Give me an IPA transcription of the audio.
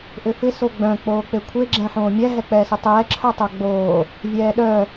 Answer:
ʔ ʏ f ɪ s o ɡ͡b œ̃ k͡p oː k͡p e kʷʰ e ɡ͡ǁ ɛ̃ ħ õː mʲ ɛ ɦ ɛ k͡p ɛː s ʏ tˤ ɛː ǁʰ œ tˤ œ ɡ͡b oː | vʲ ɛː ɗ œ

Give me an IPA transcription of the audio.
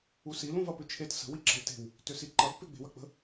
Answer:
u s i l ũ v ɐ p ʏ t͡ʃʰ e t s ə̤ w i ǁ ə̤ l t e̤ w | t ʏ s i ǃ ɐ v p e ɡ͡b e̤ w ɐ k͡p ə̤

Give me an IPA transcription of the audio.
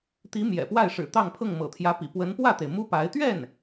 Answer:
t̪ i˧˥ m j ɛ̰˨˩ p w a˥˩ ɪ̯ ʂ ɻ̩˨˩ t̪ ɑ˥˧ ŋ pʰ ɤ˥˩ ŋ m ɤ̰˨˩ t̪ʰ j ä˧˥ p ḭ˨˩ p w ə˧˥ n p w ä˥˩ t̪ e˩ ɪ̯ m u˥ p a˧˥ ɪ̯ t̪ ɥ ɛ˥˩ n

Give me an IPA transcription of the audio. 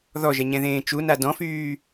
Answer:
ð ɔ ʒ ɛ ɲ ɛ̃ ð ẽː t͡ʃ u n a d ɔ̃ f yː

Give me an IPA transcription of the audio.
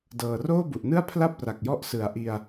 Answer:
d ɤː˨˩ r oː˥˩ b u˨˩ ʔ n ɯ˥˩ a̯ pʰ l a˥˩ p̚ r a˨˩ k̚ j ɔ˦˥ ʔ s ɯ˨˩ a̯ ʔ i˧ a̯

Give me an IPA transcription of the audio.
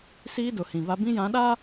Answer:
s iː˦ d ʊ˨ h ĩ˨ v a˦ b ĩ˦ j ã˨˦ ɗ a˦

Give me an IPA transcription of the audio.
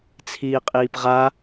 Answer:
t͡sʰ iː qʼ iː p ʁ a

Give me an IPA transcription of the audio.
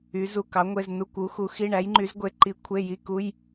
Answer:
y˨˥ z u˧˥˧ k ɑ˨˥ ŋʷ e˧˥˧ z n u˧˥˧ kʷ u˨˥ x u˨˥ x i˧˥˧ ɳ æ˨˥ j ŋ͡ǃ y˨˥ z ɡʷ e˨˥ ǃ i˨˥ kʷʰ e˧˥˧ j i˧˥˧ k u˧˥˧ j

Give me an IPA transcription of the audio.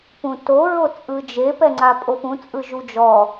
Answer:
p ũ t o ɹ o t͡sʼ ɯ d͡ʒ e p ɛ ŋ͡ǀ a pʼ o p ũ t͡sʼ ɯ ʒ u d͡ʒ ɔ

